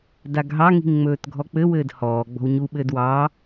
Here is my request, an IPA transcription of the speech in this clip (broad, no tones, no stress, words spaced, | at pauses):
daɡɦɑŋi̤ŋ ŋ͡mɵːtɡʱɔk͡pɘwɘːd hɔː ɡ͡bɔ̤wɲuɓɘːd wɑ